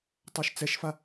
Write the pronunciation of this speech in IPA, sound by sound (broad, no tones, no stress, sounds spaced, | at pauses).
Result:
tˤ a ʃ t͡s ɛ ʃ f a